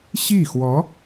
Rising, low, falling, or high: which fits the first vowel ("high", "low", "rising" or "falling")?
falling